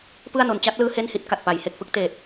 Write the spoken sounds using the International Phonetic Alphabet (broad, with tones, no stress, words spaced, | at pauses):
pɯ˥˩a̯no˧n t͡ɕa˦˥t̚lɯː˦˥ he˥˩nhi˥˩t̚ ka˨˩t̚pa˩˦jhe˨˩k̚fɯ˥˩k̚ teː˨˩t̚